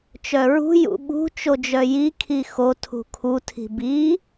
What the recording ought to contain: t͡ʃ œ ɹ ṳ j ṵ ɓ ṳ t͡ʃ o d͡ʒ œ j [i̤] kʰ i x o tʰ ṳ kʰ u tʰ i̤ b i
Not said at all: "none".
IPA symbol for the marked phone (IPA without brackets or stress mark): i